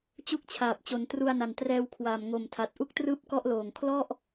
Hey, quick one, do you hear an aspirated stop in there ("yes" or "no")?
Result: yes